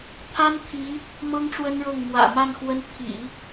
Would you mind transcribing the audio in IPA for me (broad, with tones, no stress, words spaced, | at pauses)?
t̪ʰa˥nt̪ʰi˧˥ | mɤ˥ŋʈ͡ʂwə˥nɻɤ˥˩ŋ mwä̰˨˩ ma˥˩n xwə˥n t̪ʰḭ˨˩˦